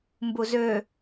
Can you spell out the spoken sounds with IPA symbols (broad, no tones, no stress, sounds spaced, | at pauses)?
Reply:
m b u z ø